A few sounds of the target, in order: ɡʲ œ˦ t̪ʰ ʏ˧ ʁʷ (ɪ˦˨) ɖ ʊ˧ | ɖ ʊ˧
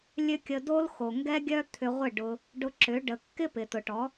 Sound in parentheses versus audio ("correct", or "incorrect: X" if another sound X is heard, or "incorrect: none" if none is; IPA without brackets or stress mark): correct